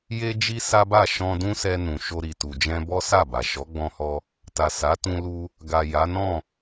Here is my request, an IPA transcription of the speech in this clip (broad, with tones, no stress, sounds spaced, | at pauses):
j e˦ d͡ʒ i˦ s a˦ b a˦˨ ʃ ɔ̃˧ d ũ˦ s ɛ˧ n ũ˨ ʃ o˧ ɾ i˨ t u˨ d͡ʒ ɛ̃˧ b ɔ˦ s a˦˨ b a˨ ʃ ɔ˨˦ ɡ͡b ɔ̃˧ h ɔ˧ | t a˨ s a˨˦ t ũ˧ l u˧ | ɡ a˨ j a˨˦ n ɔ̃˦˨